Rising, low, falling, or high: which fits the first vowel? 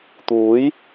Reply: rising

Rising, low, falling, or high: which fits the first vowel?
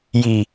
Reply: low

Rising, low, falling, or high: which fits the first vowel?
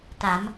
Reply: rising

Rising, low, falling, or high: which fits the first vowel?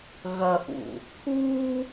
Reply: low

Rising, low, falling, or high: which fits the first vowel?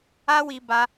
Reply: high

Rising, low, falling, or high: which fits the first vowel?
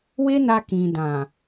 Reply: high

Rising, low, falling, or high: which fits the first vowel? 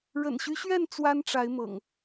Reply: low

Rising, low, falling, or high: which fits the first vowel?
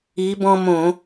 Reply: rising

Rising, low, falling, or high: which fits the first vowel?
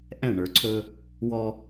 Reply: falling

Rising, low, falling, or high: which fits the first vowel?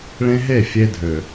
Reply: high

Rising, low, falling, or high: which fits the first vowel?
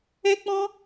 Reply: high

